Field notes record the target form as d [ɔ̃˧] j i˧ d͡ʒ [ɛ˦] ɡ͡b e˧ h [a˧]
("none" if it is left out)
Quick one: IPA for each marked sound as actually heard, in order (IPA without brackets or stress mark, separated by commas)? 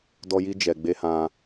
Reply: ɔ˧, ɛ˨, ã˧